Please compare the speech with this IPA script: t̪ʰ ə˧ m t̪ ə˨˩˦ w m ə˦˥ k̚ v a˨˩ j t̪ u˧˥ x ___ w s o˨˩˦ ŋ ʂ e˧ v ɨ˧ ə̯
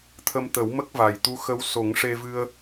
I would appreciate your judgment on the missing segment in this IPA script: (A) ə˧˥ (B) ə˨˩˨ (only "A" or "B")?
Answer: A